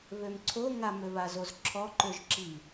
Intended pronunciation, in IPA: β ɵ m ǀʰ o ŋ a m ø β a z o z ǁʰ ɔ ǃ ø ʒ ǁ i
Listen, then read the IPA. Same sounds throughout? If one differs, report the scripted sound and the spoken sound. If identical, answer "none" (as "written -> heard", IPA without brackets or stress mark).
ɵ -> ø